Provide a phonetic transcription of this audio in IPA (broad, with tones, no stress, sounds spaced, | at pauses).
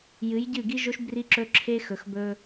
j ɨ˨˦ j ɟ ɨ˦˨ ɡ i˦ ʒ o˦ ʃ b r i˦ ǁ ɵ˦ ǁʰ e˦ x ɵ˨ x b ɵ˦